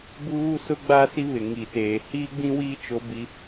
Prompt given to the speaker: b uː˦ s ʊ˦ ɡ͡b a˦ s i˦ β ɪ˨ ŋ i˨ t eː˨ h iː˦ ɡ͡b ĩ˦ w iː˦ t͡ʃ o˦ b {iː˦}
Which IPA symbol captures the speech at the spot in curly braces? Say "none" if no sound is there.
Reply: i˦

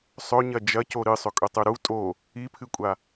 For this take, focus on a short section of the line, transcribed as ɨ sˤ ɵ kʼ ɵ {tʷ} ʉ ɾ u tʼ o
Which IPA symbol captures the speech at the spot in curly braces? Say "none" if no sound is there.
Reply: tˤ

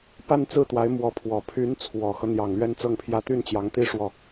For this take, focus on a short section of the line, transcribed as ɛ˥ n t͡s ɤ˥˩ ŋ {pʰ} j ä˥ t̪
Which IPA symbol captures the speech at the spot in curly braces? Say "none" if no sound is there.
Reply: pʰ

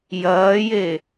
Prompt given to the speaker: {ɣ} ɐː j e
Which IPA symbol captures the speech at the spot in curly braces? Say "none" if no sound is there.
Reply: j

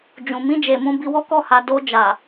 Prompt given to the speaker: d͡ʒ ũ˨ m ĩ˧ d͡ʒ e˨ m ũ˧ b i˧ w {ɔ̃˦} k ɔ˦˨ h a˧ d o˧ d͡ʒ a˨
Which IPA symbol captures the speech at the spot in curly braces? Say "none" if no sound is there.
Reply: ɔ˦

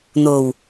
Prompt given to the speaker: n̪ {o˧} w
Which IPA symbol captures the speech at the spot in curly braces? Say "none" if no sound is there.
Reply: o˨˩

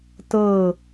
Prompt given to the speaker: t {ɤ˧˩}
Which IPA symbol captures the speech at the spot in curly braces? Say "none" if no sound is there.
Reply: ɤ˧˩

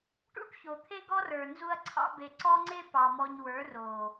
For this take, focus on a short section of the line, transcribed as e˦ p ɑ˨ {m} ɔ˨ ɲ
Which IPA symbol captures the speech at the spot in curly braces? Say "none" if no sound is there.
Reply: m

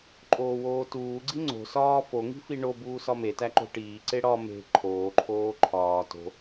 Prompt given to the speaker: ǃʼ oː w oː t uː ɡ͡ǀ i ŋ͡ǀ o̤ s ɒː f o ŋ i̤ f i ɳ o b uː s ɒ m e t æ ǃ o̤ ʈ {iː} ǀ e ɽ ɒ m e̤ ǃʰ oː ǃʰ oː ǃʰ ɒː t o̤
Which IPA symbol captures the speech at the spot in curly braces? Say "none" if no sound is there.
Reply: iː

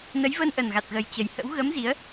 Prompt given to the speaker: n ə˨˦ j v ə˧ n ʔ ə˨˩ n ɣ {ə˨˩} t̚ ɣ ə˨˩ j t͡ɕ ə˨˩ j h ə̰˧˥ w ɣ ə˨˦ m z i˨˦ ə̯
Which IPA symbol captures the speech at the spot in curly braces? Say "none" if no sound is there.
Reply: a˨˩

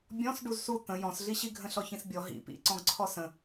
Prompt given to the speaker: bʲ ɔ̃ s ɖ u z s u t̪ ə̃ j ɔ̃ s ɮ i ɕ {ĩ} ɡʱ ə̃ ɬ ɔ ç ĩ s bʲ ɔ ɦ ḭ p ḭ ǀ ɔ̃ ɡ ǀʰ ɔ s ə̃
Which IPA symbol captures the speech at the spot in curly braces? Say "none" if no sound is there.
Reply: i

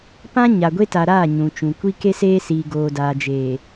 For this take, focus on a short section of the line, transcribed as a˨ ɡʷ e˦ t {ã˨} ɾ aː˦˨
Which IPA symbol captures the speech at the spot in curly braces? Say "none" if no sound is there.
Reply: a˨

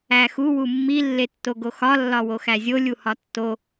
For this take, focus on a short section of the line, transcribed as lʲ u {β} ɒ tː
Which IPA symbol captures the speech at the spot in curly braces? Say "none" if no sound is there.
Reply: h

